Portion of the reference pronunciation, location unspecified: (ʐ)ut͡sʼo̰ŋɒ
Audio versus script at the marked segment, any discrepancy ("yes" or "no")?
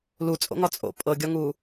yes